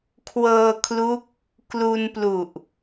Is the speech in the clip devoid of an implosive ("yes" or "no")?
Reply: yes